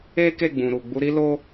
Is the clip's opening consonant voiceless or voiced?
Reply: voiceless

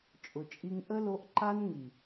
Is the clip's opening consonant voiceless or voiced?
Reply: voiceless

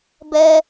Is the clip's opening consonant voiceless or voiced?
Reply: voiced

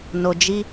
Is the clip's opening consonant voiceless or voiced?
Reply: voiced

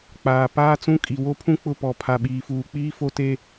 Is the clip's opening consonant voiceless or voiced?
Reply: voiceless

